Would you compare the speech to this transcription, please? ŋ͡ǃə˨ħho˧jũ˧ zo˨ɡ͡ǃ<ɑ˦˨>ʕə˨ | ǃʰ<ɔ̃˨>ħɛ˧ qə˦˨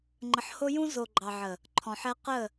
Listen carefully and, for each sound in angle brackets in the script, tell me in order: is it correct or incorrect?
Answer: incorrect: ɑ˨, correct

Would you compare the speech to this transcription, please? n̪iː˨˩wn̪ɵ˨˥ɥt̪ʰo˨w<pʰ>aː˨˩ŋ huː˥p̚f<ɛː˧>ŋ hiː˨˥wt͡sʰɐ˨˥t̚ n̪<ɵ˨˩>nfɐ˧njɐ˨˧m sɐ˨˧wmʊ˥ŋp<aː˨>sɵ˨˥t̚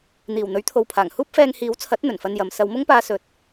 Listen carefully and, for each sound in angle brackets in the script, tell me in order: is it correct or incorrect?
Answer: correct, correct, correct, incorrect: aː˧

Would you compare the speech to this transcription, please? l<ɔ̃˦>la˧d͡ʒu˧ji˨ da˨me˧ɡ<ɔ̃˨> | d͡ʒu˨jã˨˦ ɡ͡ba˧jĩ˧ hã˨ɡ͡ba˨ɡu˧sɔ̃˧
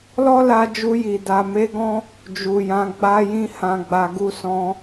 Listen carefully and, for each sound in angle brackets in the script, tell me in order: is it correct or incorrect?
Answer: incorrect: ɔ˦, incorrect: ɔ̃˦

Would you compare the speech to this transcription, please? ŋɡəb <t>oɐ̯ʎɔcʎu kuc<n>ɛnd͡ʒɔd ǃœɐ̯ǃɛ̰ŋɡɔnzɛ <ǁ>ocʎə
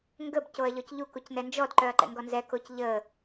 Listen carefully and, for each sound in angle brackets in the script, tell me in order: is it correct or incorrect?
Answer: incorrect: c, correct, incorrect: k

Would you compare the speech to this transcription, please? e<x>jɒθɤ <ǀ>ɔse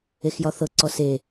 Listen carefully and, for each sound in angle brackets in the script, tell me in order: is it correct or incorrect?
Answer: correct, correct

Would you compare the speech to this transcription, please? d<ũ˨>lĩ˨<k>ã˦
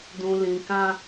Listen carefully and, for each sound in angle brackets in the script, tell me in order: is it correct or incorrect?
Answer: correct, correct

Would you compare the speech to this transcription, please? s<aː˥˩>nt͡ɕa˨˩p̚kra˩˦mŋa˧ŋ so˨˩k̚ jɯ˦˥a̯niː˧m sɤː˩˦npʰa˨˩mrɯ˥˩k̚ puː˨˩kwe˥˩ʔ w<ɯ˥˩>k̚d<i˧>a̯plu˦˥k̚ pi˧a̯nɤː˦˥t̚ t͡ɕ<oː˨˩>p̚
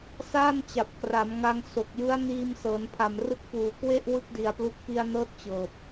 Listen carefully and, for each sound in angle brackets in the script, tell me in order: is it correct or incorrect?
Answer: correct, correct, incorrect: i˩˦, incorrect: ɤː˨˩

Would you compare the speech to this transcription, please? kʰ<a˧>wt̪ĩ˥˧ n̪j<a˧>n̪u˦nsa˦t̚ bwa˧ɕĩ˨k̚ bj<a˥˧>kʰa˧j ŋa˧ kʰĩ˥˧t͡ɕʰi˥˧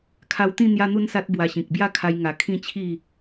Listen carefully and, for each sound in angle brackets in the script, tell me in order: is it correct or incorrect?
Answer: correct, incorrect: a˦, correct

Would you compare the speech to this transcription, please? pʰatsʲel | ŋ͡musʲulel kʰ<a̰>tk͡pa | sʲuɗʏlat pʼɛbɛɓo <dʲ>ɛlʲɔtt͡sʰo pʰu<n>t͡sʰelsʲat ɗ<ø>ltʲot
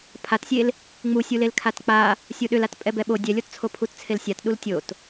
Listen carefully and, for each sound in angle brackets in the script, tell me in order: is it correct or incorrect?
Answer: incorrect: a, correct, incorrect: t, incorrect: u

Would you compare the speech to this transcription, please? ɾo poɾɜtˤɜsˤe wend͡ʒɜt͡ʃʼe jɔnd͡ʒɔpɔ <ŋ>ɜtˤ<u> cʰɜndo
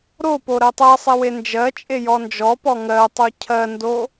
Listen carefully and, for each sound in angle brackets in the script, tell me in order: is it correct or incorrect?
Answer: correct, incorrect: o

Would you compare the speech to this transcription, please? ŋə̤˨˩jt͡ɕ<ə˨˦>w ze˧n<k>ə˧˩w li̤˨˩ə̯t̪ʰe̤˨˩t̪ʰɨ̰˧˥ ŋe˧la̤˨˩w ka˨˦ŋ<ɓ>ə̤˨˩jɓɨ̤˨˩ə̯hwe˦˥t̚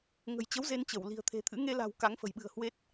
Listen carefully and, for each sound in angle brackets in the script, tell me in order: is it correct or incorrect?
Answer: correct, incorrect: t͡ɕ, incorrect: f

